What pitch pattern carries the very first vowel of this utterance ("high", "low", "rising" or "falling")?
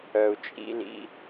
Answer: low